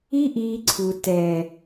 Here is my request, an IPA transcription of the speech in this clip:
i˦ ʔ iː˧ ǀʰ u˨ t ɛ˨

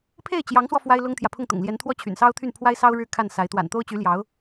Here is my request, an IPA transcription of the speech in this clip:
pʰ e˥˩ ɪ̯ t͡ɕ j ɑ˧˥ ŋ s w ɔ˧ f w a˥ ɪ̯ l ʊ˥ ŋ t̪ʰ j ä˨ pʰ ʊ˥˩ ŋ t̪ ʊ̰˨˩ ŋ l j ɛ˧˥ n t̪ʰ w ɔ˥ t͡ɕʰ y̰˨˩ n s ɑ˥ ʊ̯ t̪ʰ y˥˩ n pʰ w a˥ ɪ̯ s ɑ˥ ʊ̯ ɻ ɻ̩˥˧ kʰ a˥˩ n s a˧˥ ɪ̯ t̪ w a̰˨˩ n t̪ o˥ ʊ̯ t͡ɕ y˧˥ l j ɑ˧˥ ʊ̯

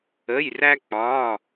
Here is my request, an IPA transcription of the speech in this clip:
ə˧˥˧ j r æ˥ k͡p ɒ˧˥˧

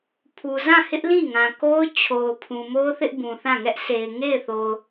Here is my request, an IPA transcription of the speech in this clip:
pʰ u˨ z ã˦˨ h ɪ˦ ʔ l ĩ˦˨ ŋ ã˨ k o˦ ʊ̯ t͡ɕʰ o˨ ʊ̯ pʰ ũ˨ m o˦ ʊ̯ θ ɪ˦ ʔ b ũ˨ θ ã˦˨ ŋ ɛ˦ ʔ sʰ e˨ ɪ̯ ŋ e˦˨ ɪ̯ θ o˨ ʊ̯

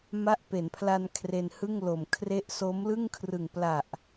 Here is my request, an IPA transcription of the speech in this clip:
m a˦˥ ʔ p e˩˦ n pʰ l a˧ n kʰ r e˧ n h ɯ˥˩ ŋ l o˨˩ m kʰ r e˦˥ ʔ s o˦˥ m l ɯ˥˩ ŋ kʰ r ɯ˨˩ ŋ p l a˨˩ ʔ

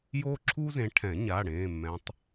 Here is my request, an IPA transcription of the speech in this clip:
j oː˥ ǁʰ uː˥ z ẽ˨˦ ʈʰ ɛ̃˨˩˦ ɲ a˩˧˩ ɽ ẽː˩˧˩ mː ɛ̃˨˦ tˤ

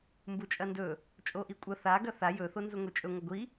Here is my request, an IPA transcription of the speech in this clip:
m b u t͡ʃʼ ɐ n d ɵ | t͡ʃʼ o ʔ i kʷʼ ɐ θ a ɡ ɐ θ a j ɵ θ o n z u ŋʷ e t͡ʃʼ ɵ ŋʷ ɐ ɡʷ i

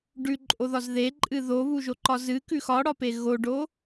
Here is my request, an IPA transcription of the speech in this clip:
ɖ ʉ ǃʼ o ð ɒ z ð e ǃʼ ɨ ð o β u ʒ o ǃ ɒ z ɨ k ʉ x ɒ ɽ ɒ p e ɣ o ɖ o

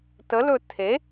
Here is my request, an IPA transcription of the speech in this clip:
t ə l ɵ tʰ e

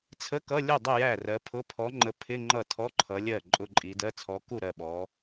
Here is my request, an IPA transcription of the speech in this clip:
t͡sʰ ə˧˥˧ k ʌ˧˥˧ lʲ ʊ˥˩ dˤ ɪ˥˩ j æ˥˩ r ɜ˨˦ pʰ ʊ˧˥˧ pʰ ɔ˨˦ ŋ͡ǃ ə˨˦ pʰ ɪ˧˥˧ ŋ͡ǃ ʌ˥˩ tʰ ɔ˧˥˧ ǃʰ ʌ˨˦ lʲ ɜ˥˩ ǃʼ ʊ˧˥˧ ǃʼ i˨˦ d ɜ˧˥˧ t͡sʰ ɔ˨˦ k u˥˩ ɾ ɜ˥˩ ɓ ɔ˨˦

